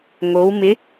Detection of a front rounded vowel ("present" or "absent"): absent